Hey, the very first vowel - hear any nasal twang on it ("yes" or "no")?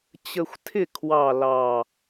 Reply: no